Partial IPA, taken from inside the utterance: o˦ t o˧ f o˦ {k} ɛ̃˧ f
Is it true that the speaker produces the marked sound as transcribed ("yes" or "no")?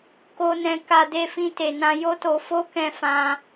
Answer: yes